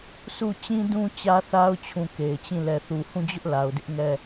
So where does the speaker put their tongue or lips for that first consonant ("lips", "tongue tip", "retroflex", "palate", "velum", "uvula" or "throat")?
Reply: tongue tip